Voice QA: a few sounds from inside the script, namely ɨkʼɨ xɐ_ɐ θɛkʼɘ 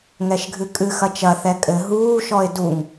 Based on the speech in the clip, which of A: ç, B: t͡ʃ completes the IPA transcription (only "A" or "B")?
B